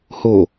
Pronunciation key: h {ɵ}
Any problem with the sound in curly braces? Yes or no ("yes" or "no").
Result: yes